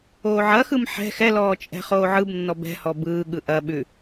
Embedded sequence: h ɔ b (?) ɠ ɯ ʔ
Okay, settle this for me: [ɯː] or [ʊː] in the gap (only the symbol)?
ɯː